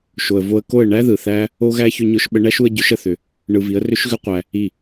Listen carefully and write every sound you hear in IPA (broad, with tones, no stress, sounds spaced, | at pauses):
ʃ o˨ ə̯ v o˧ ə̯ k o˦˨ ə̯ ɳ æ˦ ð ɯ˨ θ æ˦ | o˧ ɣ æ˧ ç ʏ˧ ɲ ʊ˧ ʃ ɓ ə˧ ɳ æ˦ ʃ u˧ ə̯ ɟ ʏ˨˦ ʃ ə˧ θ ʏ˧ | ɳ ɯ˧ v i˨˦ ə̯ r ʏ˦ ʃ ɣ ʏ˦ qʷ æ˧ | i˦˨